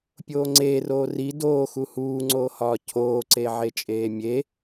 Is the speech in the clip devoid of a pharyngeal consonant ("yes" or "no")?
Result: no